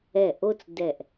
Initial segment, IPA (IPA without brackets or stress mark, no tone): ɛ